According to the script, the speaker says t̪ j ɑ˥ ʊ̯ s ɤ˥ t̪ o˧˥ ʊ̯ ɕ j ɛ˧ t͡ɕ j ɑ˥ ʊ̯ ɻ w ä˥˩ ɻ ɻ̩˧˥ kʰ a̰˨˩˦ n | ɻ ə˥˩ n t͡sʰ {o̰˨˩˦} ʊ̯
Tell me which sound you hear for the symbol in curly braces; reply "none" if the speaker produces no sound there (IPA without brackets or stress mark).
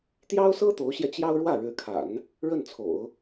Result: o̰˨˩˦